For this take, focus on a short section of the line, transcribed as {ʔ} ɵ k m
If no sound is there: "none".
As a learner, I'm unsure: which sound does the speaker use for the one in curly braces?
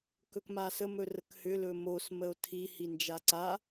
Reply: k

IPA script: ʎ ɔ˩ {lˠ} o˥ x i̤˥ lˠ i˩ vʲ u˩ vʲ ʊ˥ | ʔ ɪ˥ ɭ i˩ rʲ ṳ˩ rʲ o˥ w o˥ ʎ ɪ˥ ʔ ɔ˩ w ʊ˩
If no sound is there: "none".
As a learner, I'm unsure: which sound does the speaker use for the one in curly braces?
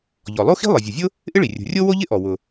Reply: lˠ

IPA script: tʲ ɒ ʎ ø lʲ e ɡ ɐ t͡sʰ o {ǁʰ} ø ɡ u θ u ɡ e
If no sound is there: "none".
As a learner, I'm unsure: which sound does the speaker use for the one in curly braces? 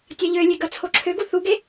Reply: ǁʰ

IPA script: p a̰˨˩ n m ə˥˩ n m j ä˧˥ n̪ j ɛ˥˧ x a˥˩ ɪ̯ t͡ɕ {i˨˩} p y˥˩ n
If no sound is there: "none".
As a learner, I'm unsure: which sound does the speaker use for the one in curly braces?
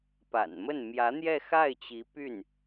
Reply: i˧˥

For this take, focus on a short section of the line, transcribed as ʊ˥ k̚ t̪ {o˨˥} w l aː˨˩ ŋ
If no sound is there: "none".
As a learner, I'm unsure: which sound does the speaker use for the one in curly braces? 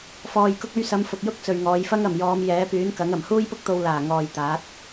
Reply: o˧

